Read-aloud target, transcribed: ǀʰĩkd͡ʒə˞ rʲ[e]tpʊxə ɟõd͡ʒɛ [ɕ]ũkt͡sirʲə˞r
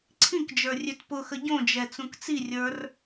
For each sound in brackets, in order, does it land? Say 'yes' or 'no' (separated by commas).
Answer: no, no